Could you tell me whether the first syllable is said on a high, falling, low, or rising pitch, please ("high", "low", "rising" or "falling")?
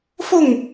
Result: falling